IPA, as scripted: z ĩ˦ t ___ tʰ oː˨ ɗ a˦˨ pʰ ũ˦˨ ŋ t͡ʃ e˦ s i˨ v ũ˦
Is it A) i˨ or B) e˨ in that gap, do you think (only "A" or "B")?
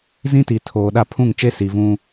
A